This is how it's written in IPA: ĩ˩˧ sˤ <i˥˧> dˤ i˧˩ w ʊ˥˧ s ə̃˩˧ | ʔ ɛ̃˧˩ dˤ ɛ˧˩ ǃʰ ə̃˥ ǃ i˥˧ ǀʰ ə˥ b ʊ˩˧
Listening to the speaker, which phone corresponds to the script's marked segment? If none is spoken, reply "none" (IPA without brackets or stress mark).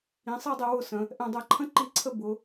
i˥˧